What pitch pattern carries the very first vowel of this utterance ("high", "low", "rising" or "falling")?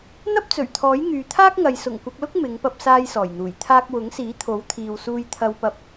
high